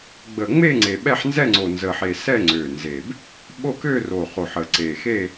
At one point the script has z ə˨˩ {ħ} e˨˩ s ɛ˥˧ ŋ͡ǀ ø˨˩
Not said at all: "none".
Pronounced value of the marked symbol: ħ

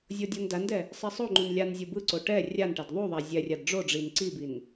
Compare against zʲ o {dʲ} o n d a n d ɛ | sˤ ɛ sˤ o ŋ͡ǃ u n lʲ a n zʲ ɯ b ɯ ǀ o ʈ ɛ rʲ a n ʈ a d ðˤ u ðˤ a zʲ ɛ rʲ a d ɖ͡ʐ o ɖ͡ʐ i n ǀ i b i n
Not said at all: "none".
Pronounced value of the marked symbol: dʲ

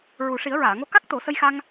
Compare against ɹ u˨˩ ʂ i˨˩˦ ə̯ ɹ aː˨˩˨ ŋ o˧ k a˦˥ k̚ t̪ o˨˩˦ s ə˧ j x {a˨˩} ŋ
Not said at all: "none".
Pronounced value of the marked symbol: a˧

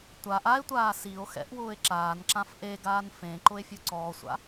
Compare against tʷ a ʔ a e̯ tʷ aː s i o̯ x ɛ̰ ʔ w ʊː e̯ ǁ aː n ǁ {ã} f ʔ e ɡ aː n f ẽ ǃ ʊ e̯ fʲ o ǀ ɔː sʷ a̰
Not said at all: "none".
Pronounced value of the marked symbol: ã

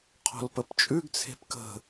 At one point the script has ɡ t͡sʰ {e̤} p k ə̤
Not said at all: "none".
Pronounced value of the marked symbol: e̤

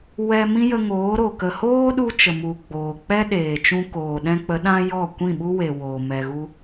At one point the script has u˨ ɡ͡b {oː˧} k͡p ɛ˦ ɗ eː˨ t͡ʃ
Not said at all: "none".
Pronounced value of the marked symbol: oː˨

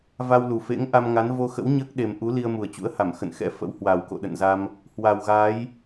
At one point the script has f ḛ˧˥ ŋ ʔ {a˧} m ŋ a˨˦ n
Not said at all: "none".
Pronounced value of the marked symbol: a˧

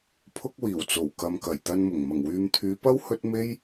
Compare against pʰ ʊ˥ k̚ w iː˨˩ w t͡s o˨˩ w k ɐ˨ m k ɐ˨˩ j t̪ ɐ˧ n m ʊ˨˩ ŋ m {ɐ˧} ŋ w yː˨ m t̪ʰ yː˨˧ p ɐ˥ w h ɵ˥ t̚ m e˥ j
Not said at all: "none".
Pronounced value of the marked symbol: ɐ˨˩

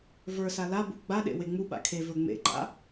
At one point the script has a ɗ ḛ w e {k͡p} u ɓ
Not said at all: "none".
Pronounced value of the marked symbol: ŋ͡m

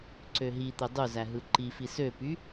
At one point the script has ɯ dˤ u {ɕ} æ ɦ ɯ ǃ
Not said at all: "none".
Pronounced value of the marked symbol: z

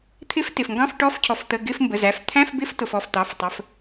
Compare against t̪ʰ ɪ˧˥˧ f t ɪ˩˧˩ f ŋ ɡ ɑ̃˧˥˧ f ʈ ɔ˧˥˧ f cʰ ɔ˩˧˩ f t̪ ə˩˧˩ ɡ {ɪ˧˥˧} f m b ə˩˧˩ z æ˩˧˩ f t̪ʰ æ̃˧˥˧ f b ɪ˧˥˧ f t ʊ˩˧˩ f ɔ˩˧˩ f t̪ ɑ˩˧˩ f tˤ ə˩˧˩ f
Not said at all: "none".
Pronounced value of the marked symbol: ɪ˧˥˧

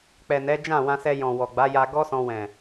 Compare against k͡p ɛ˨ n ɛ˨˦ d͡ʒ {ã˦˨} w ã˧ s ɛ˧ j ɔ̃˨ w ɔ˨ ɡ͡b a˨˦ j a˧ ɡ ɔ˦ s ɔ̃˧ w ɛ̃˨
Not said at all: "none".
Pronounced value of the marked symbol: ã˦˨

